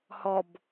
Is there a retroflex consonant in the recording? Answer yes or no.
no